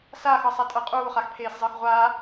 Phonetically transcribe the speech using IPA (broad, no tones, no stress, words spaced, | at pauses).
saxɤsˤatʼɤ qʼuːχaxpʰeːszˤəːx ʁʷa